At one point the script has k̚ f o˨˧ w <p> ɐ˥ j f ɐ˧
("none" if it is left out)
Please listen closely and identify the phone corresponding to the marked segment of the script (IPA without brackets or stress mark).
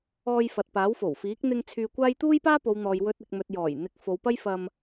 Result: p